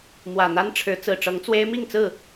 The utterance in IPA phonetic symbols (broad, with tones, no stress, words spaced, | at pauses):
mwä˨˩n̪a˦nʈ͡ʂʰɻ̩˨˦ t͡sɹ̩˨˩ʈ͡ʂɤ˨˦ŋt͡swe˦ɪ̯ mi˥˨ŋt͡sɹ̩˥˨